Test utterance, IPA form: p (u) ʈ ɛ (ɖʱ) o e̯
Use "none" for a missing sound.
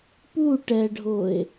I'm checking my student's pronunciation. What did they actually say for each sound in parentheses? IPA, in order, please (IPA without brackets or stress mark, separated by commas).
u, ɖʱ